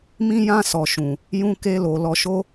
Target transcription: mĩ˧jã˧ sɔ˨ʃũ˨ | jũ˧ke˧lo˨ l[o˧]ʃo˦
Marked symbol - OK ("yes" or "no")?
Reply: no